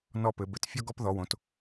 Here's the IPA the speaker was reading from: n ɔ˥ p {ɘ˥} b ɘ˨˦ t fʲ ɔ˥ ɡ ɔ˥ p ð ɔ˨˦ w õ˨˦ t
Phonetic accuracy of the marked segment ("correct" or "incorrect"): incorrect